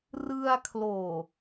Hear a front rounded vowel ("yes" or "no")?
no